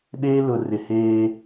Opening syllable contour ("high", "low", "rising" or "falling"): high